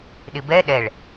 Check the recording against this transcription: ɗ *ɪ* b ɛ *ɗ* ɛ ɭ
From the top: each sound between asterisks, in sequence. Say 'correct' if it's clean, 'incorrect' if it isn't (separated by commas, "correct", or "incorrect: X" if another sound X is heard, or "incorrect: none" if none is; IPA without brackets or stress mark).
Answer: correct, correct